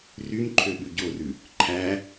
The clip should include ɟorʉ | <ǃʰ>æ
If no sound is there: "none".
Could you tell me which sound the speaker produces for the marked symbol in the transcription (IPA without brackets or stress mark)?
ǃʰ